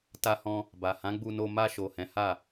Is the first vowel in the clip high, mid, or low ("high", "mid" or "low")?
low